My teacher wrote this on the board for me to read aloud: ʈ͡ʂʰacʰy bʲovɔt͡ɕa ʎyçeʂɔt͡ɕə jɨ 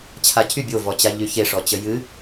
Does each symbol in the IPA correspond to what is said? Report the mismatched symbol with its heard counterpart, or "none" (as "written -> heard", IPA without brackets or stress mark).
ʈ͡ʂʰ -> t͡ɕʰ